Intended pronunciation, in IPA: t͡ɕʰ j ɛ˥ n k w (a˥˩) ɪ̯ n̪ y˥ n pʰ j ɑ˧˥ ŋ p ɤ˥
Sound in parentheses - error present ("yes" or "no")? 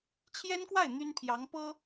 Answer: no